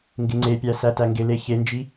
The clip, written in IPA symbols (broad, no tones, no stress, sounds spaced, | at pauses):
ŋ ɡ ɪ ŋ͡ǀ e pʲ æ s æ t æ ŋ ɡ ɪ l e ç e n d͡ʒ i